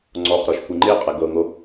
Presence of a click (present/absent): present